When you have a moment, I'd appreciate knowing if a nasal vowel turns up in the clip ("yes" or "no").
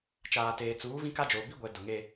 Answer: yes